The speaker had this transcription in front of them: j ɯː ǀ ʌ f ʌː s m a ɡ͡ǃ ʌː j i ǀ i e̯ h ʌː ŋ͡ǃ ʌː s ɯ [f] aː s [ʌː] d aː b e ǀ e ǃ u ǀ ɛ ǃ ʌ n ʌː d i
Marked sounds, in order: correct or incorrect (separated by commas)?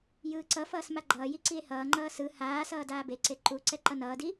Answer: incorrect, correct